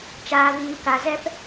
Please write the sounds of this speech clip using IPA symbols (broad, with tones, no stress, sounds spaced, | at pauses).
t͡ʃ aː˦ v iː˦ k a˦ z ɛ˦ p